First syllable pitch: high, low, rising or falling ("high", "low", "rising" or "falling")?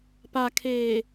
low